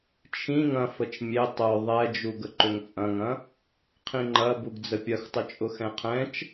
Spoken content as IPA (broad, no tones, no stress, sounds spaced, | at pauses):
t͡ʃʰ ĩ ŋ ɐ̃ f ə t͡ʃ mʲ e tˤ œ ðˤ ɛ d͡ʒ u ɡ ə ǃ ʏ ŋ t͡sʼ ɐ̃ ŋ ɐ̃ | qʰ ĩ ŋ͡ǃ ɐ b u ɡ d͡z ə pʲ ɐ x tˤ ʊ t͡ʃʼ ʊ x ɛ̃ qʰ ɛ̃ t͡ʃ